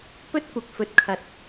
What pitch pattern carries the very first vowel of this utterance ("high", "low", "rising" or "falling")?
high